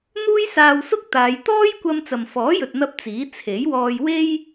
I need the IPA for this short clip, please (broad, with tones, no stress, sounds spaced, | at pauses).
n̪ uː˥ j s aː˧ w s ʊ˥ k̚ t̪ aː˨˧ j t̪ ɔː˥ j kʷ ɐ˧ m t͡s ɐ˨ m f ɔː˨˥ j ɵ˨ t̚ n̪ ɐ˧ p̚ t͡s iː˨˥ t͡sʰ e˨˥ j w ɔː˧ j w e˥ j